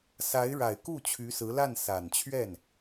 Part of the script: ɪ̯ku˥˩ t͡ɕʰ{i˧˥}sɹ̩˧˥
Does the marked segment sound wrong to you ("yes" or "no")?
yes